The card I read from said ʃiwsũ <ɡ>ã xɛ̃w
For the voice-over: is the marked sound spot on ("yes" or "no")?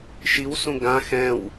yes